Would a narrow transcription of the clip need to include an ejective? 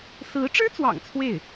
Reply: no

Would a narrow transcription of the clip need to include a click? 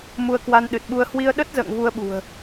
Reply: no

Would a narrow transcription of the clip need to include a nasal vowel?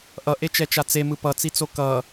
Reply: no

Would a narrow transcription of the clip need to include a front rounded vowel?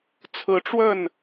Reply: no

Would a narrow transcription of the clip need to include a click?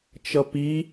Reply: no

